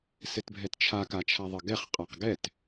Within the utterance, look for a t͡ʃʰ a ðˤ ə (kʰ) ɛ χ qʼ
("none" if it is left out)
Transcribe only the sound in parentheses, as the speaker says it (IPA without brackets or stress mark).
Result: ɡ